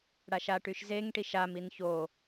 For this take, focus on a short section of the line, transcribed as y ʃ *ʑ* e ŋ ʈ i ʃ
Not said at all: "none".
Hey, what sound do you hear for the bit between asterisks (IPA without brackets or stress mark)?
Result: z